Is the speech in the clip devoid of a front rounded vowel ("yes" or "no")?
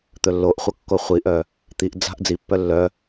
no